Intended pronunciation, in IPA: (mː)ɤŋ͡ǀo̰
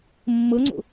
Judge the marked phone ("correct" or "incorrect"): correct